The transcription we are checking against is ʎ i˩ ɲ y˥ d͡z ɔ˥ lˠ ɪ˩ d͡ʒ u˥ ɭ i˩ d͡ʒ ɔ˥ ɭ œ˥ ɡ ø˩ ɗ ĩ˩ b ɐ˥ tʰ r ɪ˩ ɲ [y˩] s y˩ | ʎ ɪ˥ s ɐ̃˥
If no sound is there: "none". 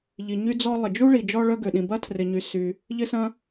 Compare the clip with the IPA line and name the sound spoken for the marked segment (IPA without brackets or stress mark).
y˩